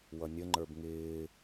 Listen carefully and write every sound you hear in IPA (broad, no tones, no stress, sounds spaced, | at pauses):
w ʌ nʲ ə ŋ͡ǃ ə˞ b ŋ ɪː